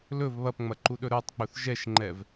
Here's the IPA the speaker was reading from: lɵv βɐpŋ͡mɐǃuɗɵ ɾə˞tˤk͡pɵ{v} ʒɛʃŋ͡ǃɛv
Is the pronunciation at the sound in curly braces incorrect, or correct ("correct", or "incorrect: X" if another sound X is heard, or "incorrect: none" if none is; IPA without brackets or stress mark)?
incorrect: θ